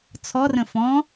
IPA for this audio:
t͡sʰ ɔ r ə̃ f ɔ̃

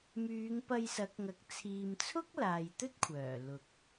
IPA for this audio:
m yː˨˧ ŋ p ɐ˧ j s ɐ˨˥ k̚ ŋ ɐ˨ k̚ t͡sʰ iː˨ m t͡sʰ ʊ˥ k̚ l aː˨ j t̪ ɵ˥ t̚ kʷʰ œː˨˩ l ʊ˨ k̚

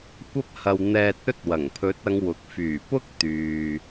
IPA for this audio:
kʷ ɐ˥ p̚ h ɐ˧ w n̪ ɛː˧ t̚ ɵ˥ t̚ w ɐ˨˩ ŋ pʰ ɵ˨˥ t̚ ɐ˨˧ ŋ w ʊ˨˥ k̚ f yː˨˩ p ʊ˥ k̚ t̪ yː˨

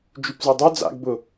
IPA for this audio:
d͡ʒ y p z œ dˤ œ d͡z a̰ ɡ b ʊ

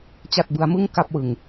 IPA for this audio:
t͡ɕ a˥˩ t̚ b ɯ˦˥ a̯ m ɯ˥˩ ŋ k a˥˩ p̚ w ɯ˧ ŋ

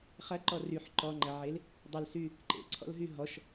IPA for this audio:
χ ɐ ǃ ɔ r y ħ ǃ ɔ ŋ͡ǃ ɐ ʕ e l | dˤ ʊ l s y | ǃ ḛ ǀʰ ɔ̰ l ɦ y ɦ ɔ ʃ

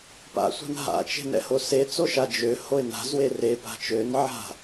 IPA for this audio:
p a̰ sʷ a̤ n ɦ a̰ t͡ʃ e̤ n ɛ̰ h o s e t͡s o ʃ a d͡ʒ ø h o ɪ̯ n a̤ z w e r e p a̤ t͡ʃ ø n ʕ a̤

